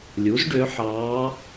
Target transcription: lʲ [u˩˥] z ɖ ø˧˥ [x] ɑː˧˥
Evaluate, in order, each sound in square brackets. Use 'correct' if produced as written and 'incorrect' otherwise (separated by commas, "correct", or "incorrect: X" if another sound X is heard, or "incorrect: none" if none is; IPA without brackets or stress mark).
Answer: correct, incorrect: ħ